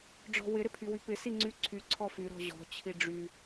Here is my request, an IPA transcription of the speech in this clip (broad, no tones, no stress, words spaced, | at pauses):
ɖ͡ʐɔ̤wɪ ɾɪpʰywypɪ siŋ͡ǀy ǀʰy ǀʰɔfy ɾɔ̤ʑɔ̤ t͡ɕʰiɖ͡ʐy